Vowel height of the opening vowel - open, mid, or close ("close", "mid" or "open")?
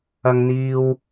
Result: open